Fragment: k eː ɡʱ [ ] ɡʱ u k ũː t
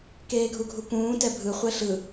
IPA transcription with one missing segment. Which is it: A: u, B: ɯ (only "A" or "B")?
A